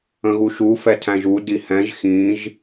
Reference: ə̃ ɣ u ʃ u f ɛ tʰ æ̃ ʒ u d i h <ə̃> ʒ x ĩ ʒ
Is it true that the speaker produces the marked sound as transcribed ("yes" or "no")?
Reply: no